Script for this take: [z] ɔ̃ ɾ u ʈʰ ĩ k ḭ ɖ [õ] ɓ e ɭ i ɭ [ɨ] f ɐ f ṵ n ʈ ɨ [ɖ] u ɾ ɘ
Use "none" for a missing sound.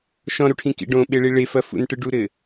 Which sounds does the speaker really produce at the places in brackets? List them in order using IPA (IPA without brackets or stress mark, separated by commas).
ʃ, õ, e, ɖ